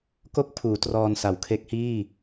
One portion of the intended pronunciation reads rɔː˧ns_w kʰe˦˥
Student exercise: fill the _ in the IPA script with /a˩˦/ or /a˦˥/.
a˩˦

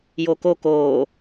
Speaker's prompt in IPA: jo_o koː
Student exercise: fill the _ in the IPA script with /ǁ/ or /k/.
k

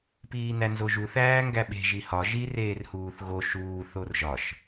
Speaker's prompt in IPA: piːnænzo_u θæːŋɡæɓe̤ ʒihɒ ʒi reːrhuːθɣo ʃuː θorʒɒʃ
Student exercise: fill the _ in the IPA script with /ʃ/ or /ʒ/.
ʒ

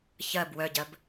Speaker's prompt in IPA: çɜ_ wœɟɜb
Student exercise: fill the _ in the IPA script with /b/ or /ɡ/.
b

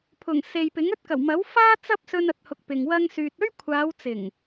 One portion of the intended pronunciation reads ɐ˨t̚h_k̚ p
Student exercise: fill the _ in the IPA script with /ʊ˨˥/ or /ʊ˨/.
ʊ˨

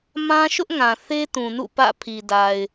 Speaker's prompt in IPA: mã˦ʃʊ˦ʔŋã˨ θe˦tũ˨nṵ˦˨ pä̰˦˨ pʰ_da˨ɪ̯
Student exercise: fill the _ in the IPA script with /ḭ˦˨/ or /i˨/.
i˨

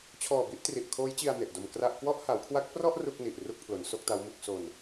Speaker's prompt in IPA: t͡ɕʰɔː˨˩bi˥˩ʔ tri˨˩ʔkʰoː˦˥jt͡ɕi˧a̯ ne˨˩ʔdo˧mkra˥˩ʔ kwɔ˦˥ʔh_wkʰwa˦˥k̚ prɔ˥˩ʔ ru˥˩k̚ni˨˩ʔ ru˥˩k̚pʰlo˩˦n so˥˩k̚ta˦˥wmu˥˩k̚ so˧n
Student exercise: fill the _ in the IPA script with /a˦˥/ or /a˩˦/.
a˩˦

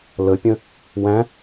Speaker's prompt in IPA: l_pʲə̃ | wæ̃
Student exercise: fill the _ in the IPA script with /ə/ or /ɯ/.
ə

